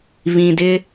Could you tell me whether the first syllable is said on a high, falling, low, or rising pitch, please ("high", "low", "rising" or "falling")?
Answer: low